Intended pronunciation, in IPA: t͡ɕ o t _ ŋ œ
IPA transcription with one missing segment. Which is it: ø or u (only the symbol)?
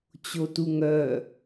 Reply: u